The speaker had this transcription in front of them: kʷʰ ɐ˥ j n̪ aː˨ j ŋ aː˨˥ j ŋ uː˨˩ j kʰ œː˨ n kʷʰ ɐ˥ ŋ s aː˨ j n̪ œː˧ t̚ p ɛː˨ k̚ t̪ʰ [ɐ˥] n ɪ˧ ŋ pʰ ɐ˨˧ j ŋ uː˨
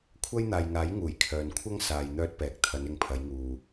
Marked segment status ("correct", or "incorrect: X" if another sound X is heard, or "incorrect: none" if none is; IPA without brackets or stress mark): incorrect: ɐ˨˧